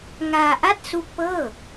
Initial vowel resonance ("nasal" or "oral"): oral